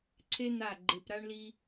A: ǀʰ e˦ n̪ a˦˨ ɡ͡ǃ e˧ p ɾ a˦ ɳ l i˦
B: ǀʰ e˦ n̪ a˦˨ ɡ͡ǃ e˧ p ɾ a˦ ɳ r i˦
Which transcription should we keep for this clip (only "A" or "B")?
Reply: A